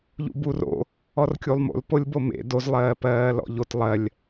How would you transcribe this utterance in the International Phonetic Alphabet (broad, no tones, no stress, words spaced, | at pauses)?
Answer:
ʎṵburo̰ | ɔrkʲulˠmo̰l polʲbomḛ doz lˠɜːpɜːlɔ̰ʎot lˠɜlʲ